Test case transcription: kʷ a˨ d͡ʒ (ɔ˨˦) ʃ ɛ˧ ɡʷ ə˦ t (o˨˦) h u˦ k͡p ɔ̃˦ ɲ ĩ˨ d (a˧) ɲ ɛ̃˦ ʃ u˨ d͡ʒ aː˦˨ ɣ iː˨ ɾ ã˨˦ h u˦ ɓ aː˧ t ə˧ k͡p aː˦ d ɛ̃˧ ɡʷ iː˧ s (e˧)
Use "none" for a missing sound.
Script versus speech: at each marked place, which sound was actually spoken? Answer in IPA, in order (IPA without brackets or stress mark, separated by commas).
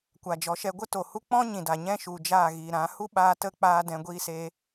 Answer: ɔ˨˦, o˨, a˨, eː˧